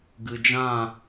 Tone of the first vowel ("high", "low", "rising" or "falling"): low